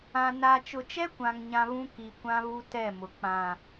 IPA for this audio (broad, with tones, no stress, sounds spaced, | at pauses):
ã˨ n a˨ t͡ʃ ʊ˨ t͡ʃ ɛ˦ kʷ ã˨ ŋ ɲ ã˨ β ũ˦ k i˨ kʷ ã˦ β u˦ t ɛ˦˨ m ʊ˨ k͡p ã˨